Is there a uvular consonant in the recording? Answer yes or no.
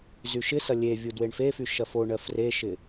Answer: no